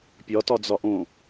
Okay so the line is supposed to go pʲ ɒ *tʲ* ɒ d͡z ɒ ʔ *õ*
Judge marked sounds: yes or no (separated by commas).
no, yes